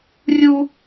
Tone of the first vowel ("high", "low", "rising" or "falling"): high